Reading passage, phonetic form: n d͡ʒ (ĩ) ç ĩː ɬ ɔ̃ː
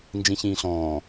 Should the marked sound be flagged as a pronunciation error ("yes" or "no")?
no